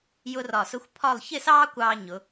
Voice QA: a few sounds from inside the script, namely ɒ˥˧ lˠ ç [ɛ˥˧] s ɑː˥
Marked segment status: incorrect: ɪ˥˧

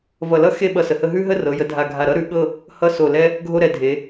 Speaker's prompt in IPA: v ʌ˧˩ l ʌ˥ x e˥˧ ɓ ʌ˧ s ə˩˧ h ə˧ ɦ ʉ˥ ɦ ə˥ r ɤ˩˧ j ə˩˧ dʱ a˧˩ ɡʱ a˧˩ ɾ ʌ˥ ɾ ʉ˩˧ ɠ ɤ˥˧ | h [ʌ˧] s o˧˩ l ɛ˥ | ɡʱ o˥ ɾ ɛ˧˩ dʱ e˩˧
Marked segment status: incorrect: ʌ˥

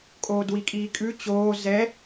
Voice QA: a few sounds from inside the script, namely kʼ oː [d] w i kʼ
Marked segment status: correct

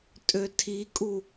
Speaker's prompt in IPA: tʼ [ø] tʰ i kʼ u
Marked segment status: correct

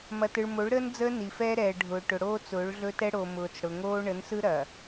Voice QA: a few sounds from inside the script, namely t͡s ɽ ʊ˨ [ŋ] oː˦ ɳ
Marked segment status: correct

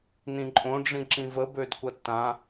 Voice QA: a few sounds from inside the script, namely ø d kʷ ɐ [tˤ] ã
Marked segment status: incorrect: tː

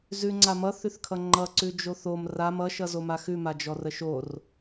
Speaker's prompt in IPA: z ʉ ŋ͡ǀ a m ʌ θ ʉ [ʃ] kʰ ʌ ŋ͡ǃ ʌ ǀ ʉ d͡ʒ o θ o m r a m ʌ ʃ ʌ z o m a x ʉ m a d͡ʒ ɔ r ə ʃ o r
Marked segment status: incorrect: θ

